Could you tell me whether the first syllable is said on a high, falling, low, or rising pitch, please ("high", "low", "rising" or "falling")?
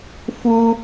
high